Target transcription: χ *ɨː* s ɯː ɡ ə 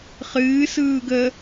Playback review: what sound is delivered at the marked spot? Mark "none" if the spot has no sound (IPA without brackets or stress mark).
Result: ɨː